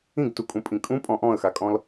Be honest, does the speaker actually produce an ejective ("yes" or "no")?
yes